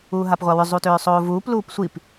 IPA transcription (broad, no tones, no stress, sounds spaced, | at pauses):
uː ɦ a p ʁʷ a w ʏ zˤ u t ʏː sˤ oː v uː p l uː p sʷ i p